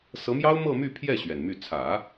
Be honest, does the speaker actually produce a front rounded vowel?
yes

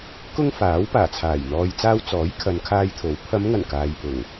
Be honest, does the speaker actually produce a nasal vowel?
no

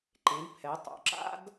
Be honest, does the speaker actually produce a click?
yes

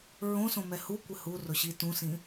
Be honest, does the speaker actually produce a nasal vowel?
yes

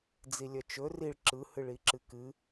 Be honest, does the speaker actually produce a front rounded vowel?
yes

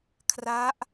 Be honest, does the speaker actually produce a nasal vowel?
no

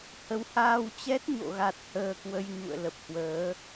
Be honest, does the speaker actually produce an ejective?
no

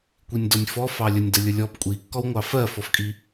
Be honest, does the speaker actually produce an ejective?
yes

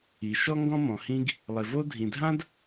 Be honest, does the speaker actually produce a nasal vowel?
yes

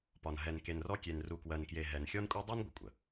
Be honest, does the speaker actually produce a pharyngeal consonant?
no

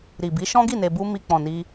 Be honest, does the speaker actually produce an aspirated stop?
no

